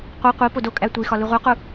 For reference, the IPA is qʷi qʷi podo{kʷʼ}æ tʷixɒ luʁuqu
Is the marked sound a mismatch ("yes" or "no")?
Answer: yes